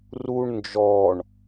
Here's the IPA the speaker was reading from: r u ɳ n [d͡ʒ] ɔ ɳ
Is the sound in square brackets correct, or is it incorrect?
correct